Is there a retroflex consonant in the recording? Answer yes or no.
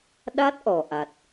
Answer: no